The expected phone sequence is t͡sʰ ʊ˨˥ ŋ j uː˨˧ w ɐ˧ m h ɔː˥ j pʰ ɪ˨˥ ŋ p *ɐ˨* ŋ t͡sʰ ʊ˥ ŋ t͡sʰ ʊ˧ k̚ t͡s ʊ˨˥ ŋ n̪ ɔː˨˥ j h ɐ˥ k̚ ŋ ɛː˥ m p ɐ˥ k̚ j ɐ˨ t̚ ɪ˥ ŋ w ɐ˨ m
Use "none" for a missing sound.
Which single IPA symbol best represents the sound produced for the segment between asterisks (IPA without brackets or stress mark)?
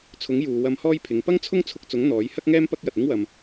ɐ˥